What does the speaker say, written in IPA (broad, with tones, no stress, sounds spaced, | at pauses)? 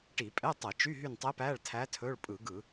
ʈ i˧˩˧ pʼ ɛ˧˥˧ tˤ ə˧˩˧ t͡ʃ y˧˥˧ ɦ y˦˨ n tˤ ɛ˧˥ p æ˧˥˧ ɭ tʰ æ˧˥ tʰ ɵ˧˥˧ ɭ pʼ ɯ˧˩˧ ɡ ɯ˧˩˧